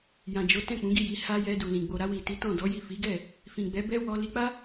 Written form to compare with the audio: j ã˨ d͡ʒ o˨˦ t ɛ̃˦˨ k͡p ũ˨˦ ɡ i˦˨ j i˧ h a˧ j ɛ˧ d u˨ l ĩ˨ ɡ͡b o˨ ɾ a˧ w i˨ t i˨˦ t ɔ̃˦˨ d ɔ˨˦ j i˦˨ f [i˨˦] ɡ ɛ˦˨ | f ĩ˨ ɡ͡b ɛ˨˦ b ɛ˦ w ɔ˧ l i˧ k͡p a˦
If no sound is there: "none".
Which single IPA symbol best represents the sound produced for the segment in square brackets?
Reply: i˨˦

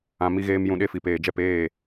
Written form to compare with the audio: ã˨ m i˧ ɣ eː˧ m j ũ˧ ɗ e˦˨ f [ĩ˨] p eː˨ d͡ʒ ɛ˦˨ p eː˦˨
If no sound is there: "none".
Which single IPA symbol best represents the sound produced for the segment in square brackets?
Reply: i˨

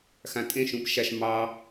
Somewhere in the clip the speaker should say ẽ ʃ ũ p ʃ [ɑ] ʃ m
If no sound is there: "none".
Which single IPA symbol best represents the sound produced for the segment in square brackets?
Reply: a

